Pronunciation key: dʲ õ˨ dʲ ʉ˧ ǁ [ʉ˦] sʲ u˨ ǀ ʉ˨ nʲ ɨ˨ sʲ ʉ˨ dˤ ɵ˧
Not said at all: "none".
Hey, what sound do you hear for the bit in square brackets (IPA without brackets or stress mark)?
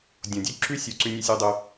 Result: ʉ˦